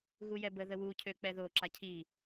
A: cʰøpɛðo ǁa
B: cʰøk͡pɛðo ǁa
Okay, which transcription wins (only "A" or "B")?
B